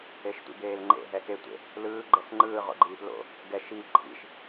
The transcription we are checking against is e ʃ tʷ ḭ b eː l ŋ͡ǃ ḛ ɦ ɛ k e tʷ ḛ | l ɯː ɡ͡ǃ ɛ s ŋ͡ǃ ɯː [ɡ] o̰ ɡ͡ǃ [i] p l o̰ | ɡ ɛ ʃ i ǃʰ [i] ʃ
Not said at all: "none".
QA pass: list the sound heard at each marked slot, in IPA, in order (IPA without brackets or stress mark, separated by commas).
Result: ʁ, iː, ḭ